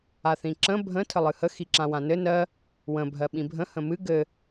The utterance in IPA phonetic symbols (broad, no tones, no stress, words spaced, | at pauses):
aθĩǁə̃ bʱə̃ tʰəlˠɨhə xiǁãwãnɘ nɜ | wə̃ bʱɜɓĩbʱə̃ hə̃mɨ ɡɘ